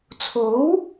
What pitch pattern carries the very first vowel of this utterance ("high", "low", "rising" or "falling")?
rising